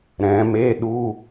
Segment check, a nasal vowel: present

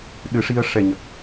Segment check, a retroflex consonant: present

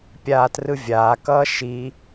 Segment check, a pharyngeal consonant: absent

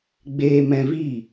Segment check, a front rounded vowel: absent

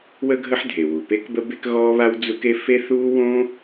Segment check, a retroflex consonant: absent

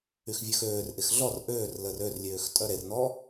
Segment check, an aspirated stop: absent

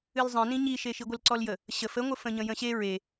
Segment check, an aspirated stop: absent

